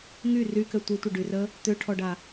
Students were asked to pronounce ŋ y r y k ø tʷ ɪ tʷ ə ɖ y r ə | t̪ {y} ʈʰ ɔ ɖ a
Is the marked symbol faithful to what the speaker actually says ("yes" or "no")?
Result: no